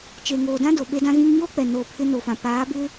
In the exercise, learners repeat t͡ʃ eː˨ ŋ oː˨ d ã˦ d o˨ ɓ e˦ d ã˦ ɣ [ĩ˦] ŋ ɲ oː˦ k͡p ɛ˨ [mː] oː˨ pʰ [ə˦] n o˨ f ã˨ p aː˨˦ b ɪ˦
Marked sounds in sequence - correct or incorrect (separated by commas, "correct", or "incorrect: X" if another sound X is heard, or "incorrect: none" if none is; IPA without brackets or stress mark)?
correct, incorrect: n, incorrect: ɪ˦